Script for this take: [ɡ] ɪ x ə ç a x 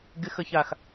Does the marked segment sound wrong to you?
no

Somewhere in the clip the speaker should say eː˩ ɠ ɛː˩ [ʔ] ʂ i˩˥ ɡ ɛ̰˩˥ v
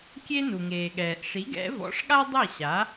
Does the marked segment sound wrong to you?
no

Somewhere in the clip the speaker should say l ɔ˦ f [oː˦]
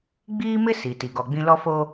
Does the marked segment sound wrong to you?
no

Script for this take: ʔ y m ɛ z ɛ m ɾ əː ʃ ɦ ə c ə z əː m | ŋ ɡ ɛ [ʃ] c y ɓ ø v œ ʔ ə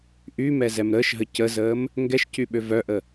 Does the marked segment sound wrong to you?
no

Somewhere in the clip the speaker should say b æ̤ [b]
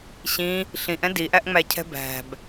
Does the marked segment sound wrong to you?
no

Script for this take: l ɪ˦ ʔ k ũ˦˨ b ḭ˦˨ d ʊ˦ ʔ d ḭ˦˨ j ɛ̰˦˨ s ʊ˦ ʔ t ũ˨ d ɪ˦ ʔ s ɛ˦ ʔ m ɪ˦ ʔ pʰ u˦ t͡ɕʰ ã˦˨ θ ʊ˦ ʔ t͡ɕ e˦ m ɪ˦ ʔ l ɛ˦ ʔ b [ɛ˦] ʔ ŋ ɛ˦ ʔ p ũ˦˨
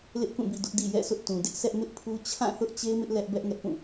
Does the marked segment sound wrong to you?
no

